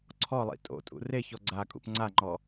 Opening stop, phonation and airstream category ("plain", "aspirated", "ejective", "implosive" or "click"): click